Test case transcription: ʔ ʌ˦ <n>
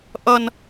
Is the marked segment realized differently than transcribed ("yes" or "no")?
no